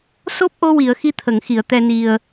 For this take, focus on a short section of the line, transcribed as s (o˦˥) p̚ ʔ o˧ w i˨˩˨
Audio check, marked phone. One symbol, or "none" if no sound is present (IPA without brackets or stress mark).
o˦˥